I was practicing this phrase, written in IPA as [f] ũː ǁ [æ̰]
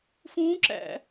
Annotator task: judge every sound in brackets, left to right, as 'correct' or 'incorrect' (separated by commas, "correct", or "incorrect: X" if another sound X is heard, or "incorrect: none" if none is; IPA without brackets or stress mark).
correct, correct